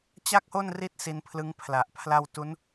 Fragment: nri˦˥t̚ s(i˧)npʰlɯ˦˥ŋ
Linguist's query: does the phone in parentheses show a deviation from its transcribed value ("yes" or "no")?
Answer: no